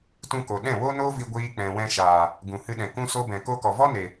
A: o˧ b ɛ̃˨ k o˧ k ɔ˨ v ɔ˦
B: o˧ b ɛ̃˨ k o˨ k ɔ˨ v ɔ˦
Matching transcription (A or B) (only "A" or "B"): A